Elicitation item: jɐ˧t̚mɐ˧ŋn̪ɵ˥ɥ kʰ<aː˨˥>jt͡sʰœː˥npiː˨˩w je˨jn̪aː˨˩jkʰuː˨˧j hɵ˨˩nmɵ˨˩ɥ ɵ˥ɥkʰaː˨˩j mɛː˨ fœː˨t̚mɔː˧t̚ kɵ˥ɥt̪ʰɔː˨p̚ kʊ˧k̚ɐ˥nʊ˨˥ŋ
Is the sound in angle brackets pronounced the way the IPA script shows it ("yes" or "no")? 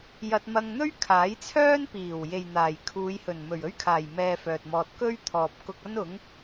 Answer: yes